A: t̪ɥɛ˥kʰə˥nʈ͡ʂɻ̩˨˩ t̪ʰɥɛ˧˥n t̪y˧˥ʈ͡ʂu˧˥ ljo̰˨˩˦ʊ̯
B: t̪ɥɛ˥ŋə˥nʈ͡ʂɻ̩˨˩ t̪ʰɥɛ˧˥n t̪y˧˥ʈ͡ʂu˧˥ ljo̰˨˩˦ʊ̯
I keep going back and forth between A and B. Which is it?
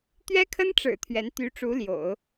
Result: A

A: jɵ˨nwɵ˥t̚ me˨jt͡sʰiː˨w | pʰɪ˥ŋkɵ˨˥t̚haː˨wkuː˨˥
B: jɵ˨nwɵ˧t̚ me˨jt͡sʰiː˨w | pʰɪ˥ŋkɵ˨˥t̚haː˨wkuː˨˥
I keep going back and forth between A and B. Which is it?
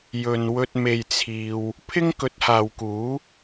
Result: B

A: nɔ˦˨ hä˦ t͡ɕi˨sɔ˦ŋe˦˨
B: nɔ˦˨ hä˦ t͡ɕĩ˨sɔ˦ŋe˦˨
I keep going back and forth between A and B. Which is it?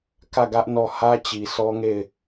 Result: A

